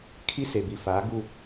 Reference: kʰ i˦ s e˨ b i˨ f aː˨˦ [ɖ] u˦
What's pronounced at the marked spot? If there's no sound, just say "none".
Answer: ɡ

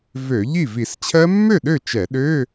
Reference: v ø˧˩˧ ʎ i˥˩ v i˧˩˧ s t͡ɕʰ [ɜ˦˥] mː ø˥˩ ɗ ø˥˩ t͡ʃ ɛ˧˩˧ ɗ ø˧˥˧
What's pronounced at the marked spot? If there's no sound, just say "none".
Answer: ɜ˦˥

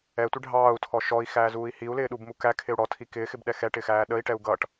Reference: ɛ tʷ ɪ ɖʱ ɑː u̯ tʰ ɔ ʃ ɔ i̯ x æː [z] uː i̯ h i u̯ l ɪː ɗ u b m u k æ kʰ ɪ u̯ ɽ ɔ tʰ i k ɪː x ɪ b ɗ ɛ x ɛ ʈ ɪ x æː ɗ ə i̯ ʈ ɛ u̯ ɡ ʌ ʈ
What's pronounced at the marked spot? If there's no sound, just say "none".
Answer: z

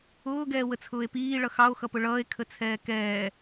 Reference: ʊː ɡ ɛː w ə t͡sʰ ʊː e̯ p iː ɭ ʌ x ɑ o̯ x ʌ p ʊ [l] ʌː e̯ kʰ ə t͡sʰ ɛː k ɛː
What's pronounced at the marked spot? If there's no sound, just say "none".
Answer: ɭ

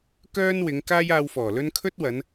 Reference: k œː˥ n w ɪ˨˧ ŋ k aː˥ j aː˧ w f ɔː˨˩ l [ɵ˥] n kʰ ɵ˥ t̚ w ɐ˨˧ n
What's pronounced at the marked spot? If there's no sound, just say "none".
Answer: ɵ˥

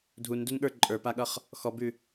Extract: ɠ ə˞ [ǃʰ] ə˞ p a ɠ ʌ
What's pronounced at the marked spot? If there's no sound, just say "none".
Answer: ǃʼ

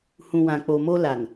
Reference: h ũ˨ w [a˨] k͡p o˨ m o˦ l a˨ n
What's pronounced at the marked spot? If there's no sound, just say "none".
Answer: ã˨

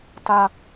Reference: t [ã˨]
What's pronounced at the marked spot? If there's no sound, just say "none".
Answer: a˨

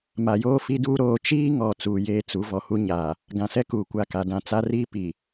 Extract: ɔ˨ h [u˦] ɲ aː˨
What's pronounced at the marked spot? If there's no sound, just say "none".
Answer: u˦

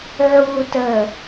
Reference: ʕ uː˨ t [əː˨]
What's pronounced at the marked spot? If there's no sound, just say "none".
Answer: əː˨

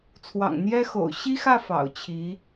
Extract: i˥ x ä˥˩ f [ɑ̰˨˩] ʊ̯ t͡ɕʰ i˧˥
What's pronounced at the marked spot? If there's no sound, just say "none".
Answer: ɑ̰˨˩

